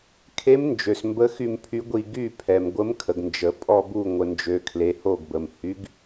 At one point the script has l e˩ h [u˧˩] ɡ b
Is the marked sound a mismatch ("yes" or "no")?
yes